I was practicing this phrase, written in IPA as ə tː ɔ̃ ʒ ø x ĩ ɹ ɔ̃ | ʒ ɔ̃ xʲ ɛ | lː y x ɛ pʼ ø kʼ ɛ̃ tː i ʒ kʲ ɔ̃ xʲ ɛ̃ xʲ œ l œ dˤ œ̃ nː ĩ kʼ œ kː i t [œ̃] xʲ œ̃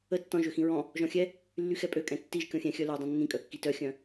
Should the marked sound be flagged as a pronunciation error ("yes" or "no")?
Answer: yes